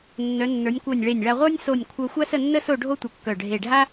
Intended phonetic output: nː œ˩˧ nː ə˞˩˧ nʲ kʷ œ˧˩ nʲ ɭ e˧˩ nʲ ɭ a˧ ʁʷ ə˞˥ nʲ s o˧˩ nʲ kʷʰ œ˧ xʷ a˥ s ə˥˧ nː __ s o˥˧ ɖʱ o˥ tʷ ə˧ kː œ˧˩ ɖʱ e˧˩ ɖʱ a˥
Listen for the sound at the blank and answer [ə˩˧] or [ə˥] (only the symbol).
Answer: ə˥